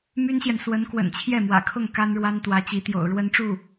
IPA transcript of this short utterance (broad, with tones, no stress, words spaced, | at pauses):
my˥nɕjɛ˨n swə˧˥n kwə̰˨˩nt͡ɕʰjɛ˥˩mwä̰˨˩ kʰʊ˥˩ŋ ka˥nɻwa˥n t̪wä˧˥t͡ɕi˧˥t̪jo̰˨˩ʊ̯ ɻwə˥nʈ͡ʂu˥˩